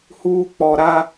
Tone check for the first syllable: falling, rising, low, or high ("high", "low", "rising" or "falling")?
high